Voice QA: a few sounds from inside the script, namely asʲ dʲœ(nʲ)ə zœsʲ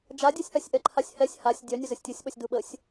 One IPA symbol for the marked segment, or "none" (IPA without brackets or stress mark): nʲ